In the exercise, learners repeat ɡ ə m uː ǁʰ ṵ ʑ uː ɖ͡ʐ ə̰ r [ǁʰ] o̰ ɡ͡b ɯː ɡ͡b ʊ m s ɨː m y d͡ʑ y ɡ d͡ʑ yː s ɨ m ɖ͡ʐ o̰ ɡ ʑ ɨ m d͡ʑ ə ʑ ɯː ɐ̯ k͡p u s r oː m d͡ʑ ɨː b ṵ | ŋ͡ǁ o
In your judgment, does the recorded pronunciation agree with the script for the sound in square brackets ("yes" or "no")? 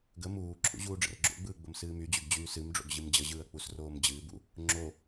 no